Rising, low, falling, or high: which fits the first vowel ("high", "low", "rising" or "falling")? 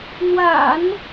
low